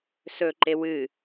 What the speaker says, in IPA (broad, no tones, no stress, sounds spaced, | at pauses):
s ɵ ǃ e w ɨ